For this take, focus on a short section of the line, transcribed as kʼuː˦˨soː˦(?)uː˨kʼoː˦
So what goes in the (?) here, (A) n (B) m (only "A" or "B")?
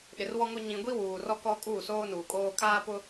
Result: A